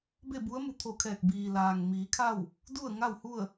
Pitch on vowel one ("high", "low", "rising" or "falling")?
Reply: falling